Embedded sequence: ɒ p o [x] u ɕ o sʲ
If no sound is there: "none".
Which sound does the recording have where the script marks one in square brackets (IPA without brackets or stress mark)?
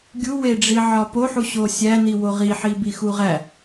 ħ